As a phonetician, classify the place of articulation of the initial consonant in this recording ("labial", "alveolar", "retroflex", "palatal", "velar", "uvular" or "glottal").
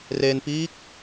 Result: alveolar